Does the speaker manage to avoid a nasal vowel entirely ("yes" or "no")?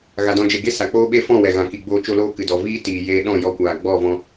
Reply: no